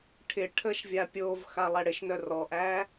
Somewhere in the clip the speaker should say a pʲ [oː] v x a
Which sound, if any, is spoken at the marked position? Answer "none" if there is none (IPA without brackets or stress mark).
oː